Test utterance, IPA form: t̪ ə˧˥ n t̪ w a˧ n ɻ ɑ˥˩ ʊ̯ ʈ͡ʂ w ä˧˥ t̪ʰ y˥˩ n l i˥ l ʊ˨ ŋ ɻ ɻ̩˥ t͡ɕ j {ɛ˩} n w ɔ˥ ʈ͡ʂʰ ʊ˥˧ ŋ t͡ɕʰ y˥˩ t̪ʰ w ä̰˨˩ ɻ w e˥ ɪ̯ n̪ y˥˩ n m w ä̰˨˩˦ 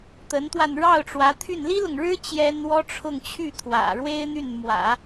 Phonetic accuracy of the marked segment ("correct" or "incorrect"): incorrect